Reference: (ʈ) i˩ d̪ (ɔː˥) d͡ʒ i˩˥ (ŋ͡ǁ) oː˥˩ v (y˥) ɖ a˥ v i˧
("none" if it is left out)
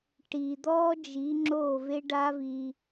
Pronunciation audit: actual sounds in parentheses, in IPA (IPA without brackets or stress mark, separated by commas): ʈ, ɔː˥, ŋ͡ǁ, e˥